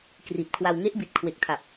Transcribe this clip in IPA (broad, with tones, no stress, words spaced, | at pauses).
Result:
kri˨˩t̚kʰwa˧w ŋe˦˥ʔbi˨˩t̚ kʰwe˨˩k̚tʰa˨˩p̚